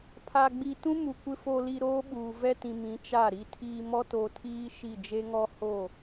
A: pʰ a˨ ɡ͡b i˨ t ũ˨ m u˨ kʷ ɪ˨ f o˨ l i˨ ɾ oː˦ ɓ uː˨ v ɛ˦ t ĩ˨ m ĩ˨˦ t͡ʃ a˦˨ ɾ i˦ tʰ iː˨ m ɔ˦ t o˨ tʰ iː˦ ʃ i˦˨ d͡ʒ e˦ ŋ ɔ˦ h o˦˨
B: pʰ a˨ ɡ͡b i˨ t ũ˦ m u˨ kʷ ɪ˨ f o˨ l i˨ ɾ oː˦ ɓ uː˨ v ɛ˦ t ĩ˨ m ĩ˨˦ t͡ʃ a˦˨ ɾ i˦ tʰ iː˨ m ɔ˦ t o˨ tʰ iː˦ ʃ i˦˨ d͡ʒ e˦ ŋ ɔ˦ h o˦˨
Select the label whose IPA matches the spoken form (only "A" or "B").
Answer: B